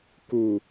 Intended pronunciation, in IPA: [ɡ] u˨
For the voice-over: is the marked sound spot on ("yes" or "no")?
no